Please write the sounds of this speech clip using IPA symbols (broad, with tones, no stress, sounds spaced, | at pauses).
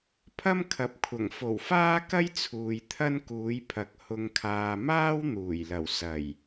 pʰ ɐ˥ m kʰ ɐ˨ p̚ kʷʰ ɐ˨˩ ŋ f o˨˩ w f aː˥ k ɐ˥ j t͡sʰ uː˨ j t̪ʰ ɐ˥ n k uː˨˥ j pʰ ɐ˨˥ k̚ h ʊ˨ ŋ kʰ aː˨ m aː˥ w n̪ uː˨˩ j l ɐ˨˩ w s ɐ˨˩ j